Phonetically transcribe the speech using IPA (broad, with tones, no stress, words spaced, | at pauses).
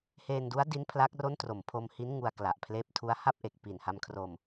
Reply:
heː˧ndu˦˥a̯di˦˥n pʰla˦˥k̚ro˥˩n tro˨˩mpʰo˧mhi˦˥n ŋu˧a̯kla˨˩ʔpʰleː˦˥p̚tʰu˦˥a̯ ha˥˩p̚ʔe˨˩k̚ pi˨˩nha˧mkʰro˧m